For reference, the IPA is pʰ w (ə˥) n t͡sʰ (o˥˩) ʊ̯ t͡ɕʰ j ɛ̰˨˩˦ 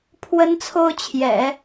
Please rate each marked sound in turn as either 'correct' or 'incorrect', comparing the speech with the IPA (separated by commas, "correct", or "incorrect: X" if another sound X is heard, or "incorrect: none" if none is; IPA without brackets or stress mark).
correct, incorrect: o˥